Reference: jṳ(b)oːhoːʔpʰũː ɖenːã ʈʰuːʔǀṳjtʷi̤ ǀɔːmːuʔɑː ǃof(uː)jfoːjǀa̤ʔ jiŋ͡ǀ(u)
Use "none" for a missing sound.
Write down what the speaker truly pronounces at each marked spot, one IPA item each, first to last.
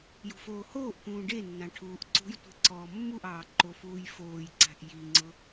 f, uː, ʊ

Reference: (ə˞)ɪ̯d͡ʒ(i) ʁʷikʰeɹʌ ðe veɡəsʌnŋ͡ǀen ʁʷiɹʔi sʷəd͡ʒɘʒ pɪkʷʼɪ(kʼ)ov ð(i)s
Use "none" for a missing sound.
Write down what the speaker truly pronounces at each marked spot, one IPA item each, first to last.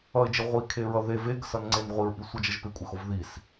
ʌ, ɪ, x, i

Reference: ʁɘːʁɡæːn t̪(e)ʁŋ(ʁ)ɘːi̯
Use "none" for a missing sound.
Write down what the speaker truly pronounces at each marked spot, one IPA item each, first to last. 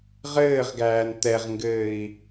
ɛ, ɡ

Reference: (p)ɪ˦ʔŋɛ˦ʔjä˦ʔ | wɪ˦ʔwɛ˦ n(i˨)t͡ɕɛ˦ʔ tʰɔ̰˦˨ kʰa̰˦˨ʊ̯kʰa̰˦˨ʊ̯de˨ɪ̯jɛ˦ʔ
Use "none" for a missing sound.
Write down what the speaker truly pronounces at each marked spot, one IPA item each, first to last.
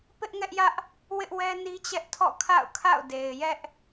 p, i˦

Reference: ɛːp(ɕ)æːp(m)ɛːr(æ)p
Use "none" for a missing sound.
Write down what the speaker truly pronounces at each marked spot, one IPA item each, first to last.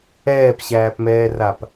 ɕ, m, a

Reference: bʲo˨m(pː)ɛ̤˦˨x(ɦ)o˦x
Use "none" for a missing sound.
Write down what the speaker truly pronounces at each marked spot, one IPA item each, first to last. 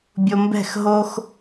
b, ɦ

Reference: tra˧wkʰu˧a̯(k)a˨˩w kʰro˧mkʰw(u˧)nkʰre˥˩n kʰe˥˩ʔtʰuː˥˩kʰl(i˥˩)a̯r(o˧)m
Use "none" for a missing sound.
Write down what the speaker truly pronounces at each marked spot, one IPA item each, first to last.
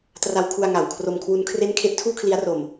ŋ, u˦˥, i˦˥, o˧

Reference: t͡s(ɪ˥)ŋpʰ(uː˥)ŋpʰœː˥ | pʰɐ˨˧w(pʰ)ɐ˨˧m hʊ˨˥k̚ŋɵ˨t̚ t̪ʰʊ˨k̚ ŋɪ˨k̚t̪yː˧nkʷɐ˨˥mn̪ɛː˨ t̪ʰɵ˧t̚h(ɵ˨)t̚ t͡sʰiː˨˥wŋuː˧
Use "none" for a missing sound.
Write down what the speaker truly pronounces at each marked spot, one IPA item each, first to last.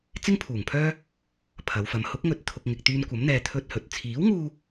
ɪ˥, uː˨˩, f, ɵ˨

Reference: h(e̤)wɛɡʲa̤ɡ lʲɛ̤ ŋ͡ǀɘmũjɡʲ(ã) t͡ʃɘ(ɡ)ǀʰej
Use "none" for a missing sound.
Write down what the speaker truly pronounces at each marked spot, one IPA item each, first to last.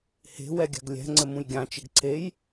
e̤, ã, ɡ

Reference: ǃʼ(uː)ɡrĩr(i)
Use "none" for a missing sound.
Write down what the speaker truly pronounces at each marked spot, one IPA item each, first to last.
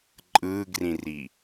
ɯː, i

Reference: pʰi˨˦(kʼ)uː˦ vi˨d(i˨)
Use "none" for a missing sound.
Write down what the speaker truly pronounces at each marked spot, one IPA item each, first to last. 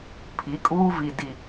kʼ, i˨

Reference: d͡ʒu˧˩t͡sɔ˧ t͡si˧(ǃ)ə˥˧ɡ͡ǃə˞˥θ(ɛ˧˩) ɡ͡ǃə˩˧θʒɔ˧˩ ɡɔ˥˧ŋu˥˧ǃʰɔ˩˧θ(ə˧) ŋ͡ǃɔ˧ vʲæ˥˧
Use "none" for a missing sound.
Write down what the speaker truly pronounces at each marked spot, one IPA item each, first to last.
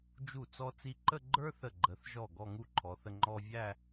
ǃ, ə˧˩, ə˧

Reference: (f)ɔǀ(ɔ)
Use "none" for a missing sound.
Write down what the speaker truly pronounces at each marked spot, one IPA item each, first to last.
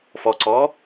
f, ɔ

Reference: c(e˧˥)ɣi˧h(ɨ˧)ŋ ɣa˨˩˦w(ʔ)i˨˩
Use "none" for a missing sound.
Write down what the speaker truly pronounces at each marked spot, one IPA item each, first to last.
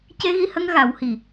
e˧, ə˧, h

